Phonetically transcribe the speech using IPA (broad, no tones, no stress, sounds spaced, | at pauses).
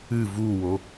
ɨ v u w o